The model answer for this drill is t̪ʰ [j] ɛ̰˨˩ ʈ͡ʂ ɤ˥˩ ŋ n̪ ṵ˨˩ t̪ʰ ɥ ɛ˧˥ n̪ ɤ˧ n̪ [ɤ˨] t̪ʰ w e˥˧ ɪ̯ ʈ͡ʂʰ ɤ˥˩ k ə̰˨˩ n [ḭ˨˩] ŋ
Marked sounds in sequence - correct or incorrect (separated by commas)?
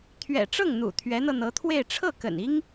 incorrect, incorrect, incorrect